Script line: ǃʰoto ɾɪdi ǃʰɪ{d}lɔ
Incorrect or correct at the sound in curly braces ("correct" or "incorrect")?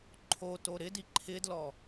correct